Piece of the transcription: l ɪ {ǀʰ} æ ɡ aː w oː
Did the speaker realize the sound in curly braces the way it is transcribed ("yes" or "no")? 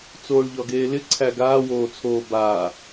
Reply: yes